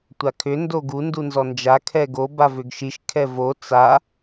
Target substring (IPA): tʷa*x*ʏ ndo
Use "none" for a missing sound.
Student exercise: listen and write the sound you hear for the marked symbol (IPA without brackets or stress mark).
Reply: kʰ